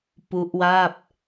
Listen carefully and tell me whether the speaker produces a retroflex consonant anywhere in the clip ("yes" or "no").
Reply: no